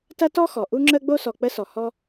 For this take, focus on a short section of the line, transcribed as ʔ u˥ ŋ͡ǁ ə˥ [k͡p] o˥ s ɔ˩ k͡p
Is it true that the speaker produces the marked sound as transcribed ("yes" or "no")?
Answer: no